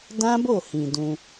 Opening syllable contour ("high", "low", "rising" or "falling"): high